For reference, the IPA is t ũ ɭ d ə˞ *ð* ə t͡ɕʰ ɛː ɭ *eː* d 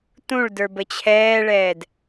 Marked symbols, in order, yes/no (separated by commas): no, no